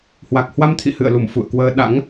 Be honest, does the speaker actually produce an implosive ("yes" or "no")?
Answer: yes